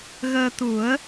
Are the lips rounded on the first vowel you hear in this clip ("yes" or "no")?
no